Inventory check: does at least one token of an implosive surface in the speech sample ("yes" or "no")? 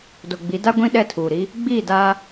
yes